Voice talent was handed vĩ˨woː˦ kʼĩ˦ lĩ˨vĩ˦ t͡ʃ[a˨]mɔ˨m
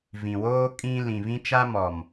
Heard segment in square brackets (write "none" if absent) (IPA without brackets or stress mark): a˦